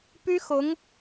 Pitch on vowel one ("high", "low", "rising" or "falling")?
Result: high